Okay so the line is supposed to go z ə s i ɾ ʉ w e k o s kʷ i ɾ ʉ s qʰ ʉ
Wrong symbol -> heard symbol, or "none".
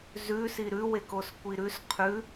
ə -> ʉ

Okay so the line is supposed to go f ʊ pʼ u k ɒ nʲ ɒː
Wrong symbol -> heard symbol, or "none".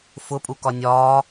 none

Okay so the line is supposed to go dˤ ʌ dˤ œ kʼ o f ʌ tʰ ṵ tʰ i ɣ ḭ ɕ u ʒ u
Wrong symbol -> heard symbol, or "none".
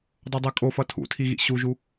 none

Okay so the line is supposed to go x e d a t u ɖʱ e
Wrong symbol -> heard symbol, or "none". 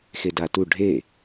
none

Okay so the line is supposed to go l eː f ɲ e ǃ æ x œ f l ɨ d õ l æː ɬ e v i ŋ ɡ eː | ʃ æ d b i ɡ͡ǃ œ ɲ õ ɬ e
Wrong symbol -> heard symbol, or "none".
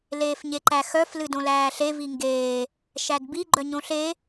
none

